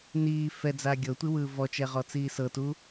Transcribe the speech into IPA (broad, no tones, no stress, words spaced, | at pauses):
niː fɛd͡za ɡʲɤtʷiwɯː vɔt͡ʃɛʁɔt͡siː sɤtu